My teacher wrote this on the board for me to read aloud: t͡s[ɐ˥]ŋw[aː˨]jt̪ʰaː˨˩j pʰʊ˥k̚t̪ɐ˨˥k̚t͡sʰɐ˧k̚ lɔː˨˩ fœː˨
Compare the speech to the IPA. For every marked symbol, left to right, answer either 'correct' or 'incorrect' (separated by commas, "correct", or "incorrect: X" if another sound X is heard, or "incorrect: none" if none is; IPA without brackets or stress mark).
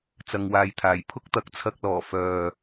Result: incorrect: ɐ˨, correct